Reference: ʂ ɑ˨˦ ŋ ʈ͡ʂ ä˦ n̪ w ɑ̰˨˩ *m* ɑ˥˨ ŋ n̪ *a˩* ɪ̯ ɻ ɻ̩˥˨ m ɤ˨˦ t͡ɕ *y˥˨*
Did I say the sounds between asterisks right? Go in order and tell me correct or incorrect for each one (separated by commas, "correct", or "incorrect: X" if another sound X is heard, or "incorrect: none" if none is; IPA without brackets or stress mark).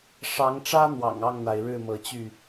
incorrect: ŋ, correct, correct